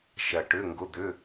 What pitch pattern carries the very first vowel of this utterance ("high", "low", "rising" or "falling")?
low